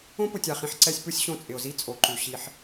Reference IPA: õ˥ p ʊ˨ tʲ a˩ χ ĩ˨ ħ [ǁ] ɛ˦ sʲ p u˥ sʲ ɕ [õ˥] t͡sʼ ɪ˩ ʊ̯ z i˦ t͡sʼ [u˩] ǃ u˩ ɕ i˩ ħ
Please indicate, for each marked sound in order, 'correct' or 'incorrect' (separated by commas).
incorrect, incorrect, incorrect